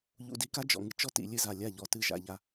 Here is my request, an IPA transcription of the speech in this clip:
ʎ ṵ˧ d i˧ k a˦ d͡ʒ ɔ̰˨ ŋ ɨ˨ t͡ʃ ɔ˦ t ḭ˨ lʲ ɨ˦ z a˨ lʲ a˦˨ ʎ ɔ˨ t ɨ˦˨ ʒ a̰˧ ʎ a˦

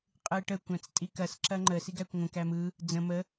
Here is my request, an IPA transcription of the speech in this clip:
qʼ ɯ ɪ̯ ʈ ə kʷ æ̃ t͡s tʼ i k ɐ s ǁ ɐ ŋ͡ǃ ə s i ɡ æ kʷ ŋʷ ə̃ k æ m ɯ | d͡z ə̃ m ə

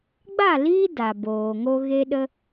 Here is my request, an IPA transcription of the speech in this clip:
ɡ͡b a˦˨ l iː˦ d a˨ b oː˨ ŋ o˧ ɣ e˦ ɗ ə˦

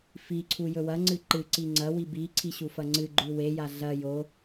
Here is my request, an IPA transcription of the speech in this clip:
f i ǀʰ u j ɵ w ɐ ŋ͡ǀ ɨ ǃ ɨ ǀ i ŋ͡ǀ ɐ w i b i ǀʰ i ɕ u f ɐ ŋ͡ǀ ɨ ɡ͡ǃ ʉ w e j a ɮ ɐ j o

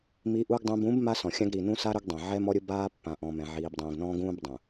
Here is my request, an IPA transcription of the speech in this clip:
m i˨ ʔ u˨ ɡ dˤ ũ˨ b ũ˨˦ b m a˦ s ɔ̃˨ xʲ ã˦ ɡ ɾ i˨ n ũ˦ s a˦ ɾ ʊ˦ ɡ dˤ ɛ̃˨ ʕ ɛ˦ m ɔ˦ ɾʲ ʊ˦ b aː˦ pː ã˨ ʔ ɔ̃˨ m ɛ̃˨ ʕ iː˨ b dˤ ũː˨ ɡ n ɔ̃ː˦ ɡ ũː˦ b dˤ ũ˨

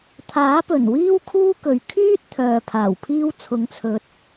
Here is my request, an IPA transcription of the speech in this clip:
t̪ʰ aː˨˥ p ɵ˨˩ n w iː˥ w kʰ uː˥ k ɵ˨ ɥ kʰ yː˥ t̚ t̪ʰ œː˨ pʰ aː˨˩ w pʰ iː˥ w t͡sʰ ʊ˨˥ ŋ t͡sʰ ɵ˨˥ t̚

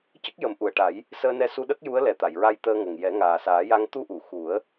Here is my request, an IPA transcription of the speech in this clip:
c ə˦˥ k̚ j ə˨˩˦ m ʔ u˨˩ ə̯ ʈ a˨˩˦ j | s əː˧ n ɛ˧ s u˧ ɗ ə˦˥ k̚ j u˧˥ ə̯ l ɛ˨˩ t̪ a˨˩˨ j ɹ a˧ j t̪ əː˧ ŋ ə˨˩ ŋ j ɛ˨˩˦ ŋ aː˨˩ s aː˨˩˦ j a˧ ŋ t̪ u˧ ʔ u˨˩˨ x u˨˩˦ ə̯

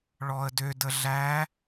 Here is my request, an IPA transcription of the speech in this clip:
ɭ ɔ ə̯ d ø d ə ɮ æ

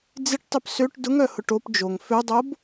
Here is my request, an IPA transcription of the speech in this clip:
d͡z ɪ ʈ tˤ œ p s ø ʈ d ʊ ŋ œ h ʊ ʈ o p d͡ʒ o ŋ f ø dˤ o b

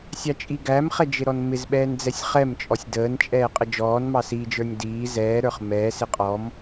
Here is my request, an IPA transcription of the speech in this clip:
sʲ ɑ t͡ʃʼ i ɡ æ m χ ɛ d͡ʒ ɪ ɾ ɔ n m ɪ z ɓ ɛː n d͡z ɛ sʲ χ ɛ m t͡ʃʼ ɔ sʲ d əː n t͡ʃʼ ɛː qʼ ə d͡ʒ ɔː n m ɑ s i d͡ʒ ə˞ nʲ d iː z ɛː ɾ ə˞ χ m ɛː s ɪ qʼ ɔ m

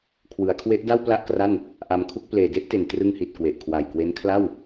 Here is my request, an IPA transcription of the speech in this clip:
kʰ w ɯ˩˦ a̯ kʰ w e˦˥ ʔ d a˥˩ w p l a˥˩ ʔ k r a˥˩ n | ʔ a˧ m kʰ u˥˩ k̚ p l eː˨˩ d e˥˩ ʔ t e˨˩ n t r ɯ˧ ŋ h i˨˩ t̚ k w e˨˩ ʔ kʰ w a˨˩ j k w e˦˥ n kʰ l a˥˩ w

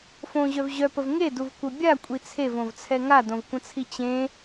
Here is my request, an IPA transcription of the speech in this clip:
f õ ʑ œ v ʑ œ p ə v ŋ e d u v kʷ œ bʲ a kʷʼ i t͡sʰ e v õ v t͡sʰ ɛ ŋ a d õ v kʷ ə̃ t͡sʰ i t͡ɕ ẽ

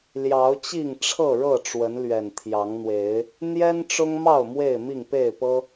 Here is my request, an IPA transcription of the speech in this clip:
l j ɑ˨˦ ʊ̯ t͡ɕ i˥˨ ŋ ʈ͡ʂʰ ɤ˥˨ ɻ ɤ˥˨ ʈ͡ʂ w ə˨˦ n l ɥ ɛ˨˩ n t̪ʰ j ɑ˨˦ ŋ n̪ w e˨˦ ɪ̯ | n̪ j ɛ˦ n ʈ͡ʂ ʊ˦ ŋ m ɑ˥˨ ʊ̯ m w e˥˨ ɪ̯ m i˥˨ ŋ p e˥˨ ɪ̯ p ɤ˦

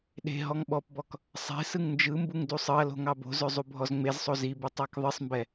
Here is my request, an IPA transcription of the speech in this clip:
ɗ e̤ ɦ ɔ ŋ ɓ ɔ p b ɔ k | sˤ e̤ s ɯ ŋ n d͡ʒ ɯ m b u ŋ d u sˤ ɯ ɐ̯ l o̤ ŋ ɑ b o̤ z ø zˤ u bʱ ɔ z ŋ͡m e z sˤ o z i b ɯ tˤ ɑ k ðˤ ɯ sˤ m b ɛ

